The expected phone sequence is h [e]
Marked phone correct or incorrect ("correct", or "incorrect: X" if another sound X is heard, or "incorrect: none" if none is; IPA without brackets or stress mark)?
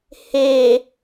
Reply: correct